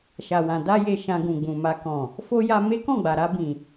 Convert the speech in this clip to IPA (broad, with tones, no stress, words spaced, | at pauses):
ʃa˨wã˨ da˧je˨ ʃã˧ɡũ˨ɡ͡bũ˨ma˧ kɔ̃˨ | fo˦ja˧ me˦kɔ̃˦˨ɡ͡ba˨ɾa˧ bĩ˨